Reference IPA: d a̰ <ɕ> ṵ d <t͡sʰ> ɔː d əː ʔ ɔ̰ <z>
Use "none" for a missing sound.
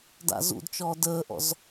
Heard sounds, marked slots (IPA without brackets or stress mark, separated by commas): z, t͡ʃ, z